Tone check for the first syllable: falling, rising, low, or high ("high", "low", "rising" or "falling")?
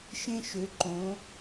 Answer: high